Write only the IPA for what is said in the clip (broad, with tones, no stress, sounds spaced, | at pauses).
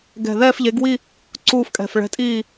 ɡ ɛ̤˧˩ ð ɛː˥˧ f ʎ e˨˥ ɡ w i˥˧ | ǀ uː˥˧ f kʼ ɛ̤˧˩ f ɭ ɛ̤˨˥ tʼ iː˥˩